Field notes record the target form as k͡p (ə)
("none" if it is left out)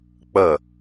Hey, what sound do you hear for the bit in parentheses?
ə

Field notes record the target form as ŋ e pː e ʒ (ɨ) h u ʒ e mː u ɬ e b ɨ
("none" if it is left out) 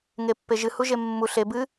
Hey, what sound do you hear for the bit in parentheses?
ɨ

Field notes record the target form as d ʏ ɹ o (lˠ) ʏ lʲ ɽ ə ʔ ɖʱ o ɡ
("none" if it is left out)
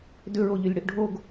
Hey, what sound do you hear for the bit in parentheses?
ʎ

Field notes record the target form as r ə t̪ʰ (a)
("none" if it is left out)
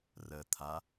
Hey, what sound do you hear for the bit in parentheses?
a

